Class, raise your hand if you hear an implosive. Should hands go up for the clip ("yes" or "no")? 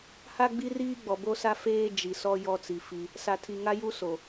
no